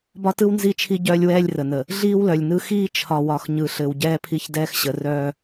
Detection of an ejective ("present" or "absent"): absent